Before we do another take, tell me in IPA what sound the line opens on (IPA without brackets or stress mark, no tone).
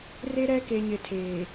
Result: r